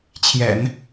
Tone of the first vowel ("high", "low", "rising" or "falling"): low